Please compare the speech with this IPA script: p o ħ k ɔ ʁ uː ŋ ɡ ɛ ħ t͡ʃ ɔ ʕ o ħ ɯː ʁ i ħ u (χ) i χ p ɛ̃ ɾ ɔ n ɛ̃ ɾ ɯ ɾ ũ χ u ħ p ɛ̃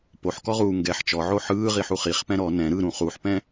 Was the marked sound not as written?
no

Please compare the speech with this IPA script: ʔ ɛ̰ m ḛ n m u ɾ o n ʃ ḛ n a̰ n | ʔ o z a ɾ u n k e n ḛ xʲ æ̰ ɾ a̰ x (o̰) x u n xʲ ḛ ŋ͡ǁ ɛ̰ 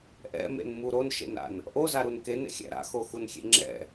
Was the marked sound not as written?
yes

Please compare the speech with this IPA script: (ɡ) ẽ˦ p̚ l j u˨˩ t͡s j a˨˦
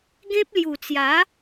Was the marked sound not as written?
no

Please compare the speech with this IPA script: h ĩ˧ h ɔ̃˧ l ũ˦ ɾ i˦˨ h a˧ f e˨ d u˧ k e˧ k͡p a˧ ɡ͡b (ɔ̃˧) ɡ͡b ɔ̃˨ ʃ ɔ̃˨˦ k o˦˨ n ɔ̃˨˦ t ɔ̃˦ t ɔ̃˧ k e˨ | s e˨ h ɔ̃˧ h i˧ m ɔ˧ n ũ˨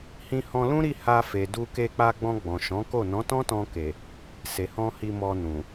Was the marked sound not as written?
no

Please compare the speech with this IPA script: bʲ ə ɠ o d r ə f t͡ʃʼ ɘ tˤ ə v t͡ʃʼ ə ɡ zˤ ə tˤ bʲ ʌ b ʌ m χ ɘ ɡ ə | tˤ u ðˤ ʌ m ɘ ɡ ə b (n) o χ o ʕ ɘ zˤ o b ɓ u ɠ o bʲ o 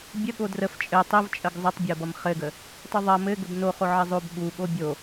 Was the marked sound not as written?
no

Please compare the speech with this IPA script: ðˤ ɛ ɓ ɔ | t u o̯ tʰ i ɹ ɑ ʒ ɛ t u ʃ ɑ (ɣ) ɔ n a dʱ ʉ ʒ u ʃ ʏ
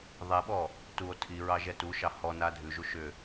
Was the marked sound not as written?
yes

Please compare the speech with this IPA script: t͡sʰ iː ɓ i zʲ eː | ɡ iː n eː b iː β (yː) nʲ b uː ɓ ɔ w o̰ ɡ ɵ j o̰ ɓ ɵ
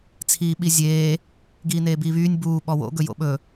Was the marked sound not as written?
no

